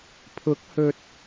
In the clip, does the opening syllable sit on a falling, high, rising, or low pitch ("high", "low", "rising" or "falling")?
rising